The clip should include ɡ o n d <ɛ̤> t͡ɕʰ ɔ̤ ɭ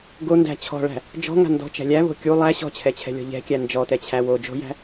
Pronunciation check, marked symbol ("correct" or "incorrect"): incorrect